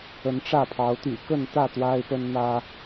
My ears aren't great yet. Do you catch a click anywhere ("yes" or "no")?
no